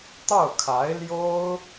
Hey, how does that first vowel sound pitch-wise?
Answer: falling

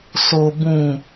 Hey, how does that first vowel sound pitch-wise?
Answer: low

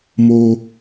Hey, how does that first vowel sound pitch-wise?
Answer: low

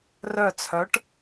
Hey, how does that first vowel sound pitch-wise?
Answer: falling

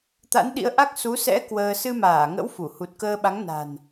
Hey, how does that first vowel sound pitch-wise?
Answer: rising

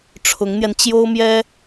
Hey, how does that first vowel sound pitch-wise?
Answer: rising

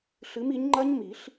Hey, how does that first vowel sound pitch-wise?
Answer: rising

